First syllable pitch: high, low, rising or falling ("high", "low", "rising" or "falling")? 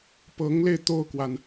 rising